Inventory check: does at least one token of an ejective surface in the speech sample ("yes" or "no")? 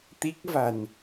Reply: no